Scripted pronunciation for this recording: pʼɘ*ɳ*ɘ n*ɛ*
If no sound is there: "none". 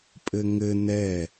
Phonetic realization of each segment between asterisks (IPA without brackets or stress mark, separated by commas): ŋ, ɛ